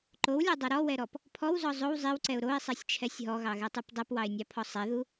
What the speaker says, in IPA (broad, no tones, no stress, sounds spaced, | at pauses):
ǃ o w lʲ ɔ dˤ o ɾ ɔ w ɛ ɾ ɔ p | pʰ ɔ w z ɔ zˤ o w zˤ e w ǀ ɛ ʊ̯ ɾ o ɪ̯ sˤ ɛ sʲ t͡ʃʰ ɛ sʲ ɦ ɔ ɣ ɑ ɣ ɛ tˤ ʉ p dˤ ɛ p w ɑ ɪ̯ nʲ ɑ pʰ ɔ sˤ ɛ ð u